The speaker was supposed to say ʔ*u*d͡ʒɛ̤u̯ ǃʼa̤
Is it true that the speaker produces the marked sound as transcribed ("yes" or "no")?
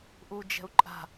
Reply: yes